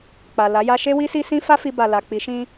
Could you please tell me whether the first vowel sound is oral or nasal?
oral